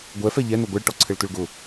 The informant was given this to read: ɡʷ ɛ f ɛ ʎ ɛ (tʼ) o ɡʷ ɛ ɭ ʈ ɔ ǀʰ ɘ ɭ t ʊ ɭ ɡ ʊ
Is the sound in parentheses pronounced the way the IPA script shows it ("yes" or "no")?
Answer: no